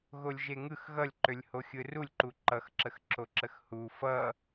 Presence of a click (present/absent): present